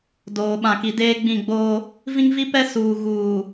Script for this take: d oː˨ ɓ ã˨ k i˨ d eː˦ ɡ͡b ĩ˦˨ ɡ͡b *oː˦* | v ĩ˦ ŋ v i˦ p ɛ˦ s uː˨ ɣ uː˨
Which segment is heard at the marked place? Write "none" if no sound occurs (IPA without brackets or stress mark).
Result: oː˦